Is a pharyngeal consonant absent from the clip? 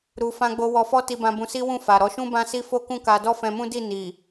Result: yes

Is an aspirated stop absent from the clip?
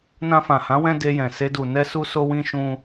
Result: yes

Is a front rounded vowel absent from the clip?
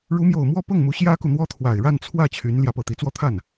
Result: no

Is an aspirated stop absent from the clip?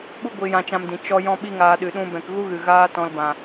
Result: yes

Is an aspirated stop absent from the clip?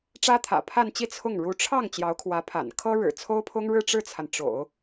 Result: no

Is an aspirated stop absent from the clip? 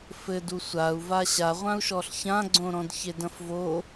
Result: yes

